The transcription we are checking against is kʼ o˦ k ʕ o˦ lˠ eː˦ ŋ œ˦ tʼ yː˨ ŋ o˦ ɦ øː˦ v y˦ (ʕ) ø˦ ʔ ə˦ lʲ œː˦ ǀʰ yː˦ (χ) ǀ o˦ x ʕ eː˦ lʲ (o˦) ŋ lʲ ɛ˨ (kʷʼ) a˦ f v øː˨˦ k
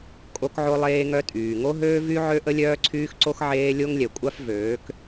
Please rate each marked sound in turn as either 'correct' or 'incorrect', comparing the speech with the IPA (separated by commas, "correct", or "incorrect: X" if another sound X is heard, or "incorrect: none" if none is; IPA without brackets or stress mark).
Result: correct, incorrect: x, correct, correct